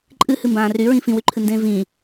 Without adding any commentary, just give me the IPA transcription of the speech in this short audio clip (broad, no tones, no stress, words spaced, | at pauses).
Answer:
ǃʼɨhɨmbãː ryɹĩ fĩwyǃʰɨndẽː vĩ